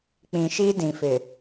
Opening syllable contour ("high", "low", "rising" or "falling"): low